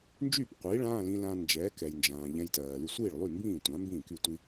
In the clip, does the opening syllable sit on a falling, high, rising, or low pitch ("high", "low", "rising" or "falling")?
falling